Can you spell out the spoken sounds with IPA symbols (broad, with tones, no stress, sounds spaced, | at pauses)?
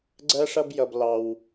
ɡ͡ǀ ɜ˥ ʂ ʌ˥ b j ʌ˧ b l ɑ˧ w